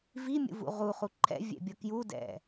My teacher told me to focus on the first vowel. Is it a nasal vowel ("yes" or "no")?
no